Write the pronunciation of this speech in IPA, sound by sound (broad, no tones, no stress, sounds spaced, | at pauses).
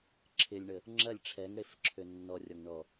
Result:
ǁʰ ɪ lʲ ɳ ə | ŋ͡ǁ ɐ lʲ ʈ͡ʂʰ ɛ ŋ ɽ e f ǁʰ ø nː ɔ rʲ ɔ ŋ ɳ ɔ